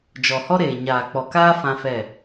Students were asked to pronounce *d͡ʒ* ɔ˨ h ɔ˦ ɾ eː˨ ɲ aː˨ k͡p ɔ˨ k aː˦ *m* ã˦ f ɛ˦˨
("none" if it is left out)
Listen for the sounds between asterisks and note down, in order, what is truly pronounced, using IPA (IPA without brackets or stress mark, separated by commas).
d͡ʒ, f